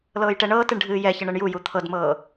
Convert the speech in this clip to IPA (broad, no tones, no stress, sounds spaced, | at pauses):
l ɤː j ʈ ɛ ɳ ɤː t ɨ ɳ ɖʱ ɨː j ɛ ç ə ɳ ɤ ɳ j u j u t̪ʰ ɤ d m ɤː